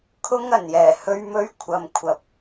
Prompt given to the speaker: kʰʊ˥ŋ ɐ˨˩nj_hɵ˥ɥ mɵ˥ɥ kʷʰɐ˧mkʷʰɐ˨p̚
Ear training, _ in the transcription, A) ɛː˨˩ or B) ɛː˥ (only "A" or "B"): A